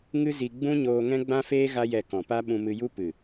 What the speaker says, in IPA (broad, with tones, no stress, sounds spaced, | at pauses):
ŋ ɨ˦ z i˧ ɡ͡b ũ˦ ɲ oː˧ ŋ ɛ̃˦ ɡ͡b ã˦ f eː˦ ɣ a˦ j ɛ˧ k ɔ̃˨ p a˦ ɓ ũ˧ m ɨ˧ j u˦ p ɨ˨